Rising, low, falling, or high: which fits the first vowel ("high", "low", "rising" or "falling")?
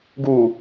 low